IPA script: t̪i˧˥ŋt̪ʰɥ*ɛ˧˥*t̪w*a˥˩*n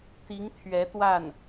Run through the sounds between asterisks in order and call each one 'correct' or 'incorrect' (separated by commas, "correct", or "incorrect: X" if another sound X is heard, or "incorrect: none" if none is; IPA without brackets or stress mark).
correct, correct